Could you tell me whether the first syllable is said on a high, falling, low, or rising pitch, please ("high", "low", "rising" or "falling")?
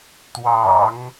low